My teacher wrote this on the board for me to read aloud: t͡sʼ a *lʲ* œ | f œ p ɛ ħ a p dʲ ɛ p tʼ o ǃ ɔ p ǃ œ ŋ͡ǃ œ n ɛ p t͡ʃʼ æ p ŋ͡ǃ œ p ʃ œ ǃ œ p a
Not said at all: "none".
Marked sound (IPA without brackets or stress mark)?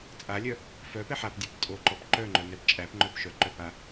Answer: lʲ